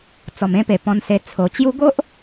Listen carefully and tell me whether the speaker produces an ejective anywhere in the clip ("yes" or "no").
no